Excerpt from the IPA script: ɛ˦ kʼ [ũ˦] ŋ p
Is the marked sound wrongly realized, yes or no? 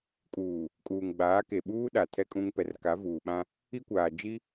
no